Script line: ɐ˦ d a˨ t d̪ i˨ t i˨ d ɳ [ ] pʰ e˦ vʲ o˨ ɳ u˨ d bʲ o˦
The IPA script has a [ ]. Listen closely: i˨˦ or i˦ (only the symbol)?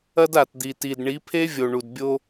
i˨˦